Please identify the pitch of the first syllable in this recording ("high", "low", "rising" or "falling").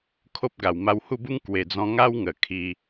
high